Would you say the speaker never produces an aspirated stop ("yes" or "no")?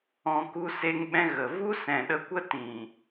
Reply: yes